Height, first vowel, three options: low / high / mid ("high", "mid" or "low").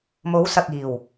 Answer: mid